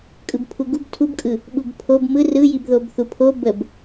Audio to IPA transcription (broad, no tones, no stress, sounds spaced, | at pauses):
kʼ ɯ b pʰ u ɡ u b tʰ u b kʼ ɯ | ɓ u b pʰ o b m ɯ r ɯ j i b ð o b θ u pʰ o b ə b